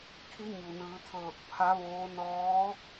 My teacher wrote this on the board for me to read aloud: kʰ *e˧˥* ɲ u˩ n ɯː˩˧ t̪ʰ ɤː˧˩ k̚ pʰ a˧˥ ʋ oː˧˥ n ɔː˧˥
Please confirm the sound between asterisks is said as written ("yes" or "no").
no